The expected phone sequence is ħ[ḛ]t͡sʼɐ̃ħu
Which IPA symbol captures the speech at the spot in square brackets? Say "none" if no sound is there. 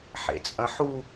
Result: ḛ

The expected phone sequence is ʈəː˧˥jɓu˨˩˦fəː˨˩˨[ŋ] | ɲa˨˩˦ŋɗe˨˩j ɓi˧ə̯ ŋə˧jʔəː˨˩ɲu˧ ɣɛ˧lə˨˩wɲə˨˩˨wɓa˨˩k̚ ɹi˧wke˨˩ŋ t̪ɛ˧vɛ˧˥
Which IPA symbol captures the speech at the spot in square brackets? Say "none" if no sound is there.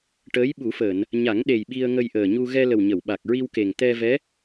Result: n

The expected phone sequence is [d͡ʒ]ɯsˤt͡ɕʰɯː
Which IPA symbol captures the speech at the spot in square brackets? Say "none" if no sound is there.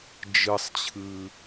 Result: d͡ʒ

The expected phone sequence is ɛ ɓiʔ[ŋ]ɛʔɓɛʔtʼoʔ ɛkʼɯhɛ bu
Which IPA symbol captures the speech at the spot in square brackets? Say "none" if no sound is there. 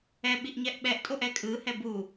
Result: ɲ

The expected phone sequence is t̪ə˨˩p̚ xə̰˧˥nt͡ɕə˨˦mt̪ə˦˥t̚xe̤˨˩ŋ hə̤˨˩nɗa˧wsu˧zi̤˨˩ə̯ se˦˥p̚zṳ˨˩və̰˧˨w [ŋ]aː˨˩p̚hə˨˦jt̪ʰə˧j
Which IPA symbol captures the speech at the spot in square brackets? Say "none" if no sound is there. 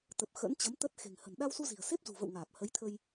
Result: ŋ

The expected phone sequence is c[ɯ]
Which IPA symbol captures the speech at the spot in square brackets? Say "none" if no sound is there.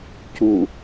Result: u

